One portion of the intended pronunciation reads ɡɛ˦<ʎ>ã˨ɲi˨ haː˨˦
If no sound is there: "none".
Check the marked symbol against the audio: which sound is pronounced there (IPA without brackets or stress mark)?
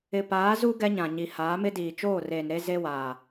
ɲ